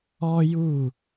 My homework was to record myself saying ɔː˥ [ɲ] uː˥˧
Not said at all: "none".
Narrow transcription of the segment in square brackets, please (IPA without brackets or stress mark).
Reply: j